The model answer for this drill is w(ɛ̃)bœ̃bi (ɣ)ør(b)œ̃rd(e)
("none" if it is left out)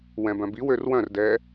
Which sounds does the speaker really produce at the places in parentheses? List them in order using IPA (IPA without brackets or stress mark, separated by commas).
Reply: ɛ̃, w, w, ɛ